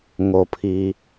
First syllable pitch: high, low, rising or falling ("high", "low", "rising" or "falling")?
low